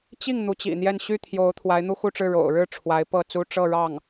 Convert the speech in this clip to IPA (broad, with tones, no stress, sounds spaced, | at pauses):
t͡ɕ i˥˩ ŋ n̪ u˧˥ t͡ɕ ḭ˨˩ n̪ j ɛ˥˧ n ɕ y˥˩ t̪ʰ j o˧˥ ʊ̯ t̪ʰ w a˧˥ ɪ̯ n̪ u˥ x u˥˧ ʈ͡ʂ ɻ̩˥˩ ɻ o̰˨˩ ʊ̯ ɻ ɻ̩˥˩ ʈ͡ʂʰ w a˧˥ ɪ̯ p ɤ˥˩ t͡s u˥ ʈ͡ʂ ɤ˥˧ ɻ ɑ˥˩ ŋ